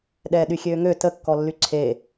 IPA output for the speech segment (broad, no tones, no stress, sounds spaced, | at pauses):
ɗ ɛː ɗ y xʲ øː ŋ ø t ə kː ɔ lː y ǀʰ e